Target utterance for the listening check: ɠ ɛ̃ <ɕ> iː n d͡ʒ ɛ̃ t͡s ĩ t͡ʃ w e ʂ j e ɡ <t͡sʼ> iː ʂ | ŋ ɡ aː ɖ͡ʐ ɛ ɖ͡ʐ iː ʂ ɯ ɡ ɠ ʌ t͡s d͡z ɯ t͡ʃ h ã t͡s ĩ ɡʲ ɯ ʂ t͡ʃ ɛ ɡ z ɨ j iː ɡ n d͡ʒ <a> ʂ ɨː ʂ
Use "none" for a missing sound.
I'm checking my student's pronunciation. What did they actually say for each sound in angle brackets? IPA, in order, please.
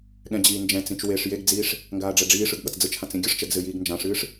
d͡ʑ, d͡z, ã

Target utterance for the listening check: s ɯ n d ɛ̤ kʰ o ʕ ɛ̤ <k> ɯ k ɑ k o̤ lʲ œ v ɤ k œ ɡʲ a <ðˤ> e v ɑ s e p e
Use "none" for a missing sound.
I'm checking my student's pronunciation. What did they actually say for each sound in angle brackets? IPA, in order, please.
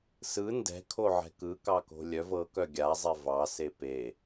k, zˤ

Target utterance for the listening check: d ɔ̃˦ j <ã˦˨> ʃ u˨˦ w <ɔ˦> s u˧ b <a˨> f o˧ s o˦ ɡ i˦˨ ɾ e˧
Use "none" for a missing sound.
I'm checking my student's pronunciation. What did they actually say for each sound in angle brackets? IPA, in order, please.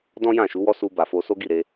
ã˦˨, ɔ˦, a˨

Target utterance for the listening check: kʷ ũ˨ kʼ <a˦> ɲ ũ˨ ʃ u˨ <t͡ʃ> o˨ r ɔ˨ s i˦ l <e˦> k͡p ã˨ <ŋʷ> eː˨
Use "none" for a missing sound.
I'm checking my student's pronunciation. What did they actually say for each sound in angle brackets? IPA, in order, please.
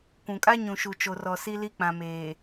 a˦, t͡ʃ, i˦, m

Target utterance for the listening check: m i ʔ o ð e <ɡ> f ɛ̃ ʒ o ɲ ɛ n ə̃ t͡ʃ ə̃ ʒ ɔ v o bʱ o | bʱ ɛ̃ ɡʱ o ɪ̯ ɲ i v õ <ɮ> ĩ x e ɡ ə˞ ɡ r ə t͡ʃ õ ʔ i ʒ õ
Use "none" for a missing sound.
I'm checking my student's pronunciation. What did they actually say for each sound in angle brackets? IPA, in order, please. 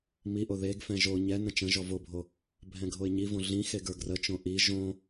ɡ, ɮ

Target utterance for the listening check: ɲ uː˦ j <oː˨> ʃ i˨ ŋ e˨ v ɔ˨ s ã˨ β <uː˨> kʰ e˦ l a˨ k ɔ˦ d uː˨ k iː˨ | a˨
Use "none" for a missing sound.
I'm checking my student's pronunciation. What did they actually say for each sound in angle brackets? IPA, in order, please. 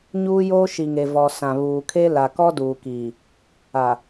oː˦, uː˨

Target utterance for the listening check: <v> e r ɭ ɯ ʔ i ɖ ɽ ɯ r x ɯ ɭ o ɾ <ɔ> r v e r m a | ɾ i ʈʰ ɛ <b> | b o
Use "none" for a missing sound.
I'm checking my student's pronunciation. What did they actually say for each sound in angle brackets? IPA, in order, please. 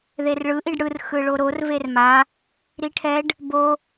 ð, o, ɖ

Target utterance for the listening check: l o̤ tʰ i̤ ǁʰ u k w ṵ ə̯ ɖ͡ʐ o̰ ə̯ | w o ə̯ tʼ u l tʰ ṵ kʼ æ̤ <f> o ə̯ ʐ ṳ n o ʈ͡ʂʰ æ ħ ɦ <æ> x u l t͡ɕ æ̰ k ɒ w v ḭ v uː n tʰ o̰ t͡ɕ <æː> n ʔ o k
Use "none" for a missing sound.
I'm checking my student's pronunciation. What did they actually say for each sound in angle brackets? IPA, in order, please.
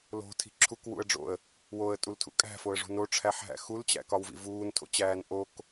f, æ̰, æː

